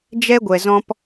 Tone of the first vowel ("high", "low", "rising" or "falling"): high